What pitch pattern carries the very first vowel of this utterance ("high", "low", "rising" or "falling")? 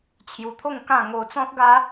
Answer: low